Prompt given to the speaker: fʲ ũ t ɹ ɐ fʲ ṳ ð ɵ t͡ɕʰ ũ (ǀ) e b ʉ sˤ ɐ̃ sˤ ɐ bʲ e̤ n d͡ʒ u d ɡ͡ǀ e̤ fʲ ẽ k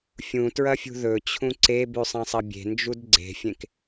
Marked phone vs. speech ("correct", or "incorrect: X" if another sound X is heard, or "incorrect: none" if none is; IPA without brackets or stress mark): correct